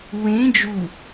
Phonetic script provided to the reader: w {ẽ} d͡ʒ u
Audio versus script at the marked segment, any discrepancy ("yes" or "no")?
no